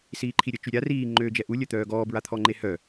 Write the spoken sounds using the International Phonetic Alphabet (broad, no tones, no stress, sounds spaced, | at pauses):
s iː ǃʰ i ɾʲ ə t͡ʃ y ɾʲ a r iː ŋ͡ǃ øː d͡ʒ ɛ ʔ u lʲ œ t̪ œː ɡ ɔː b ɹ a t̪ʰ ɔ ŋ͡ǃ e h œ